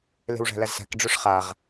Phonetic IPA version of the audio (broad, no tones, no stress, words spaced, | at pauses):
le̤wʐæ̤læzsæ̤k ɖ͡ʐoʂχaʁ